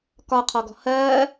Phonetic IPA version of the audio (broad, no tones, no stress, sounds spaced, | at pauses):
k ɒ qʰ ɔ ɡ ɔ̤ h ɜː